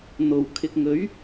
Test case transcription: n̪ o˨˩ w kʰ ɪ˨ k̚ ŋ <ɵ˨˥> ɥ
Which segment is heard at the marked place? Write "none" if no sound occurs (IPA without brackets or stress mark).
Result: ɵ˨˥